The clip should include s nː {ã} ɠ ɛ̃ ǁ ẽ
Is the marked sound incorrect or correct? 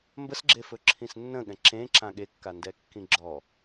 incorrect